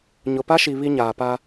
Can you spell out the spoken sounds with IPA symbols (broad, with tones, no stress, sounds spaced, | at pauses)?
ɲ ʊ˨ p a˦ ʃ i˨ β i˦ ɲ aː˨ p a˦